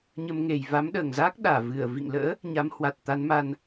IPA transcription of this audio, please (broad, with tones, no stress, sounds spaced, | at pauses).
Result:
ɲ ə˧ m ŋ e˨˩ j v a˨˦ m ɗ əː˨˩ ŋ z aː˦˥ k̚ ɗ aː˧˩ v ɨ˧˩ ə̯ v ḭ˧˨ ŋ l ə̰ː˧˥ | ɲ a˨˦ m h w a˨˩ t̚ t̪ a˨˦ n m a˧ n